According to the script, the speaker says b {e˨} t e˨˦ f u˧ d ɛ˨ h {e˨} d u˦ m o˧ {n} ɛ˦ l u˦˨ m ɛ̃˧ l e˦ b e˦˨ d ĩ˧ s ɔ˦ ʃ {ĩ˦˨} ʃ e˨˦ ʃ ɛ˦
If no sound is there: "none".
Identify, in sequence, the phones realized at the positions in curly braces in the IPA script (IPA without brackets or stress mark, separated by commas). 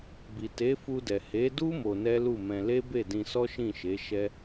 i˨, e˨˦, n, ĩ˦˨